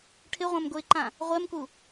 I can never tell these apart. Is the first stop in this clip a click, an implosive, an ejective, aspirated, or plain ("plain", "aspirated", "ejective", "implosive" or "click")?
aspirated